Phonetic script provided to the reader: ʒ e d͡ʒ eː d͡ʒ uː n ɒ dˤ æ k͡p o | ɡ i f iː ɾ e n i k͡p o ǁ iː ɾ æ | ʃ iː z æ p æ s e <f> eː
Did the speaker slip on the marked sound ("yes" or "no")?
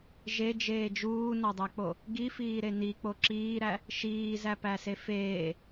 no